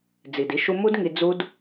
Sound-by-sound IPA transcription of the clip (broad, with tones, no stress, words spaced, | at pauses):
d͡zi˨di˦ʃu˦ mu˦dŋi˧ d͡zu˦d